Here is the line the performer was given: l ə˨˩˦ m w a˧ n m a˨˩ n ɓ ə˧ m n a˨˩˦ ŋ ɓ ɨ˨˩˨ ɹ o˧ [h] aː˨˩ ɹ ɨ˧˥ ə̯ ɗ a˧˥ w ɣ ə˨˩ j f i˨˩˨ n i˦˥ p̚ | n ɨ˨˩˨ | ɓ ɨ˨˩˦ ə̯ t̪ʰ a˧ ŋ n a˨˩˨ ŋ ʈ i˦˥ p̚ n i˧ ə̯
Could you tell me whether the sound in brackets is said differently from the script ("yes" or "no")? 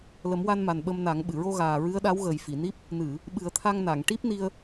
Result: yes